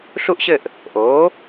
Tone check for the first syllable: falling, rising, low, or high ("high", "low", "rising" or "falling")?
falling